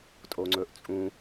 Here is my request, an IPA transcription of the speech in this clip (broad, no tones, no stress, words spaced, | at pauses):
tʼoŋ͡ǀɵʔt͡sʼũ